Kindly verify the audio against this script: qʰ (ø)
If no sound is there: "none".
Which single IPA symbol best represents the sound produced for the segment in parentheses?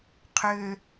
ø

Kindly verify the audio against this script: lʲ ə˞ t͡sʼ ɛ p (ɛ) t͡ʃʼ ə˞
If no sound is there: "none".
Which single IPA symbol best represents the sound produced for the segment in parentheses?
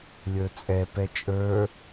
ɛ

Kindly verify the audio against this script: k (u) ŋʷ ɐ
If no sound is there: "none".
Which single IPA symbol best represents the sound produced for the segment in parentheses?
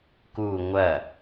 u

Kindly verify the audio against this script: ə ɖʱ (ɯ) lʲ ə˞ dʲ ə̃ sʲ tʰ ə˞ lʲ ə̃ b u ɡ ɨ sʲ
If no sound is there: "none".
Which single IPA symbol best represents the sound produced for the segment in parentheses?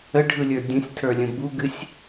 ɯ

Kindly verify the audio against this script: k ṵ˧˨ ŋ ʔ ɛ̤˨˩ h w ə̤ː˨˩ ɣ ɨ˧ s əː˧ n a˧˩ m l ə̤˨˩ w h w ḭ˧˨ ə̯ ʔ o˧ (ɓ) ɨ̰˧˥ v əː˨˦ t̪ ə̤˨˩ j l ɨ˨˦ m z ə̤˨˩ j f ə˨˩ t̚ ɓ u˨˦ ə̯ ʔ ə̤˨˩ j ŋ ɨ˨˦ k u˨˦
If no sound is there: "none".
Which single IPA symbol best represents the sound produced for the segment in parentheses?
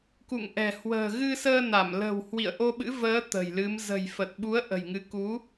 ɓ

